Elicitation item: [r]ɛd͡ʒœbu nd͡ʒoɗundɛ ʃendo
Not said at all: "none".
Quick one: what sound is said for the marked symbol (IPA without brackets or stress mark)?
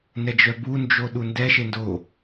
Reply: n